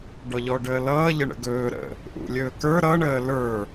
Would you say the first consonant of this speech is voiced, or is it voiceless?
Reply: voiced